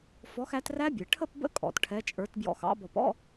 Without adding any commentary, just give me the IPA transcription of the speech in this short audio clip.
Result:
f ɔ˨˦ x æ˨˦ t r æ˦˥ bʲ ɛ˩ ʈʰ ə˥˧ p b ə̰˦˥ kʼ ɔ̰˩ t ʈʰ ɛ˨˦ t͡ʃʼ ə˞˨˦ t b j ɔ̰˧˩ x ɑ̰˨˦ b ɔ˧˩ p ɔ̰˥˧

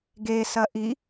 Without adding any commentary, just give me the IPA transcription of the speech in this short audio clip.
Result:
ɡ e s ɐ ʔ i

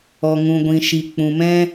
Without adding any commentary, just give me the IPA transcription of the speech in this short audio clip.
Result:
ɔ˨ ŋ ũ˨ ɡʷ ĩ˨ ʃ i˨ k͡p ũ˨ m ɛ̃˦

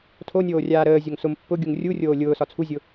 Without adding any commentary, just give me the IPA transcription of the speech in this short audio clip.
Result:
tʰ o nʲ oː rʲ aː ɾ əː zʲ o ŋ s ʊ m pː ʊ ɡʲ u ŋ rʲ u rʲ oː lʲ ʊː s ɒ t͡sʰ u zʲ ʊ

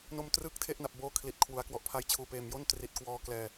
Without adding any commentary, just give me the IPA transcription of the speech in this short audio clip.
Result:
n o˧ m t r ɯː˦˥ k̚ tʰ e˥˩ ʔ n a˨˩ p̚ b oː˦˥ kʰ l i˨˩ t̚ kʰ w u˩˦ a̯ k w ɔ˨˩ ʔ pʰ a˧ j t͡ɕʰ uː˨˩ p eː˨˩ m j o˥˩ n t r i˨˩ t̚ k w ɔː˧ k l ɛː˨˩

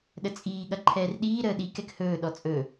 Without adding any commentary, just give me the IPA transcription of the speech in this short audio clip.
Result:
ɗ ə t͡sʼ iː ɠ ɐ ǃʰ ɛː r ɗ iː ɾ əː ɗ i k ɛ k h ɵː ɗ ɔ t͡sʼ ɵ

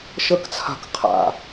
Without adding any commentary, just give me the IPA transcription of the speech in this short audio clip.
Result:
ʃ ə k t͡sʰ a̤ k qʰ a̰

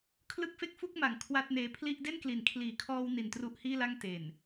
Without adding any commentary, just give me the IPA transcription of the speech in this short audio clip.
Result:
kʰ l ɯ˥˩ k̚ f e˥˩ k̚ f u˥˩ k̚ m a˨˩ ŋ kʰ w a˥˩ t̚ n eː˦˥ pʰ l i˥˩ ʔ d e˥˩ n k l i˩˦ n kʰ l iː˩˦ kʰ ɔː˧ w n i˨˩ n t r u˦˥ ʔ h iː˥˩ l a˥˩ ŋ t e˨˩ n

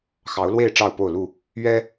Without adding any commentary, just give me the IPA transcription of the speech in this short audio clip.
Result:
x ɑ˨˦ ʊ̯ l w e˥˨ ɪ̯ ʈ͡ʂ ɑ˥˨ ʊ̯ p o˥˨ ʊ̯ l u˥˨ | ɥ ɛ˦

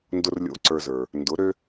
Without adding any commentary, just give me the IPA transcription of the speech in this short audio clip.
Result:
n d ʊ˦ r lʲ o̰˦ ǀ ə˞˧ z ə˞˨ | n d ʊ˨˦ ɾ ø˦

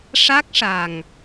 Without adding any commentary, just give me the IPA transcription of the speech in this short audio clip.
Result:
ʂ a˦˥ k̚ ʂ a˨˩ ŋ

